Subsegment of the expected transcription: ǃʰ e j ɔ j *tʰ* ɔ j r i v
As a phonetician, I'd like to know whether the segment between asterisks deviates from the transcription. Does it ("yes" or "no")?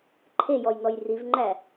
yes